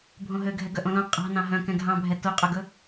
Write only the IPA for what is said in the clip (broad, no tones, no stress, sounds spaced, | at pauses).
bʱ õ ɦ ø ɡʱ ɛ ɡ œ ʔ õ l õ qʼ ɑ̤ n ɑ̃ ɦ œ̃ k ɛ̃ ɡʱ ɑ̃ bʱ ɛ t o qʼ ɵ ɡ ɵ